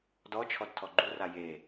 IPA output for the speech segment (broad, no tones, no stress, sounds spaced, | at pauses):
d ɔ t͡ʃʰ ɔ d tʰ ɔ ɡ͡ǃ u r a j e